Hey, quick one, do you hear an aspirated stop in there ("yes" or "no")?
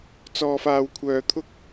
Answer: yes